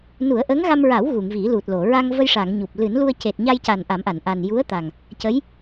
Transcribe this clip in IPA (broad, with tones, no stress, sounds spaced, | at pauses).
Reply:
n u˨˩˦ ə̯ ʔ ə˧˥ ŋ ɣ a˧ m ɹ a˨˩˦ w ɣ u˨˩˨ ŋ v i˨˩˦ l u˨˩ t̚ l o˨˩˨ ɹ a˧ ŋ v ə˧ j ʂ a˨˩˨ ŋ ɲ u˨˩ p̚ l ɨ˨˩˦ n l u˧ ə̯ c e˨˩ t̚ ɲ a˧ j c a˨˩ n ʔ a˨˩˦ m ʔ a˨˩˨ n ʔ a˨˩ n j u˧˥ ə̯ t̪ a˨˩ ŋ | c ə˧˥ j